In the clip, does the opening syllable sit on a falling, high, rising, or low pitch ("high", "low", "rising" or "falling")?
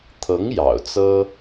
rising